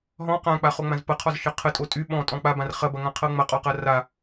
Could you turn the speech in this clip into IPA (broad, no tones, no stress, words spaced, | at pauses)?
ɦɔ̃ qãk͡pa χoŋ͡mãzpɐqʰɔz ʃɐqʰə tʼotʼy ɓɔ̃ tʼɔ̃k͡pabãr χɐbɐŋãqʰɤ ŋ͡mɐqʼɔqɐ ra